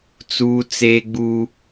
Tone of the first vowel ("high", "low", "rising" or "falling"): high